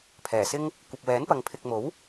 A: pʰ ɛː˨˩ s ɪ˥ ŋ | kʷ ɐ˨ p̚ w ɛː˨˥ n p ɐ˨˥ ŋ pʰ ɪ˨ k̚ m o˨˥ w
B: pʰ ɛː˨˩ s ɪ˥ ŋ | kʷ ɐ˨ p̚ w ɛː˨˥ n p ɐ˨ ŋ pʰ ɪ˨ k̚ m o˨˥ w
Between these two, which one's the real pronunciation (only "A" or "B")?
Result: B